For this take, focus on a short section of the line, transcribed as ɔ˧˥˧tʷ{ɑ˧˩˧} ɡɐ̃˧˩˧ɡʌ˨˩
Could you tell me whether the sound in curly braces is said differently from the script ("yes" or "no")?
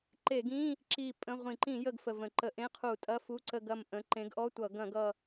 yes